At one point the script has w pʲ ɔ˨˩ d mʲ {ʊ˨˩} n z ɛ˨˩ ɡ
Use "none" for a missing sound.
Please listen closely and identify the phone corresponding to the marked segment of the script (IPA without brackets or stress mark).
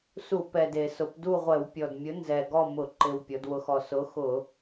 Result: ʊ˨˥